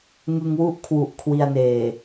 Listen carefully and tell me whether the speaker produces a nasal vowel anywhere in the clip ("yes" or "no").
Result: no